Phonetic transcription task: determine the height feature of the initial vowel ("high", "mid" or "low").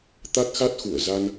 low